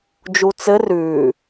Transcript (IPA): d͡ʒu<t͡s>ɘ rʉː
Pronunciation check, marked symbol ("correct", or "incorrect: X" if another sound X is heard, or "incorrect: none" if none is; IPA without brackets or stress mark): correct